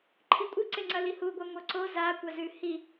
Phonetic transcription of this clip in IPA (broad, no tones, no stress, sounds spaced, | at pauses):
ǃʰ i kʷʼ ɨ ǀ e ŋ͡ǀ ɐ l i h u ɡʷ a ŋʷ ɐ ǀ o z a kʷ a z ʉ h i